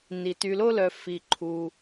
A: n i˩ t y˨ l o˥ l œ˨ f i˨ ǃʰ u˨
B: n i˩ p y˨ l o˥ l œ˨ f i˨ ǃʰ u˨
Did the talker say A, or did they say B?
A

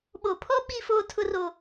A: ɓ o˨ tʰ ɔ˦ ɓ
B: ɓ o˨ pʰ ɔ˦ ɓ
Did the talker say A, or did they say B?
B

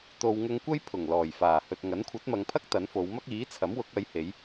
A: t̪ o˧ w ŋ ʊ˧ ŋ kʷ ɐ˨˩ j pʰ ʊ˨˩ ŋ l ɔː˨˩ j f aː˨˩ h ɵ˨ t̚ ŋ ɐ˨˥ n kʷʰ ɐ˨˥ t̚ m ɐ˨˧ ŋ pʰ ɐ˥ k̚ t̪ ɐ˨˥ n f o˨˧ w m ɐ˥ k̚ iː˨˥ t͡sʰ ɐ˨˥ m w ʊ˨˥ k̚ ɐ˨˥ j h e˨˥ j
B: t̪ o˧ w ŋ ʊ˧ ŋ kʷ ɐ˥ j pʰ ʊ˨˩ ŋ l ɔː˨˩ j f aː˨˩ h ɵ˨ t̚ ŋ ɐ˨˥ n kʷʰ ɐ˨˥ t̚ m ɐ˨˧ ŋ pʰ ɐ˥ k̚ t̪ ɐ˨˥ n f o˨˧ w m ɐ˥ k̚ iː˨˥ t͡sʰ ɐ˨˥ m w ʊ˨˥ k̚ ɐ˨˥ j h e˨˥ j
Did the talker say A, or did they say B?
B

